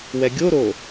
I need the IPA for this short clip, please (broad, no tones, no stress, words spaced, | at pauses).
wɛɡʲoɾo